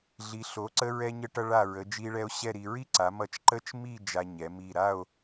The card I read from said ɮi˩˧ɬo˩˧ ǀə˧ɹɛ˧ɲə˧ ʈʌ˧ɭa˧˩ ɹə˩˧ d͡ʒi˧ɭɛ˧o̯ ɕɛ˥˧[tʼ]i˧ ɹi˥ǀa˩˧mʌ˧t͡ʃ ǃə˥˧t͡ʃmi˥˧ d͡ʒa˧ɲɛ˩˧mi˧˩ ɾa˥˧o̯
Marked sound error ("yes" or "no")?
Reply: yes